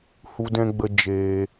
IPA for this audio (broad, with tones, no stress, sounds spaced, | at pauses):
h u˧ d ɛ̃˧ ɡ͡b ə˧ d͡ʒ eː˧